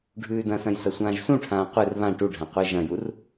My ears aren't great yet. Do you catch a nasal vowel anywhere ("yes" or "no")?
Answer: yes